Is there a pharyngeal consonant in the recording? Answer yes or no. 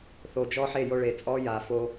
yes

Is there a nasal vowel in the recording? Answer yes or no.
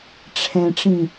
yes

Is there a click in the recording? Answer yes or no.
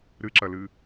yes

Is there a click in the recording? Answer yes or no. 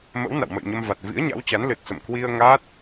no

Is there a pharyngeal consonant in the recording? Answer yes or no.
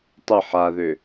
yes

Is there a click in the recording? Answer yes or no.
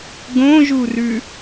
no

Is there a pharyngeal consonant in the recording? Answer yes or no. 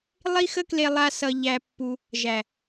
no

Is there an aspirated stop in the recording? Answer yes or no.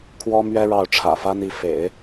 yes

